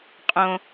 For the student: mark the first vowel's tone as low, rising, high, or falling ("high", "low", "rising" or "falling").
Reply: low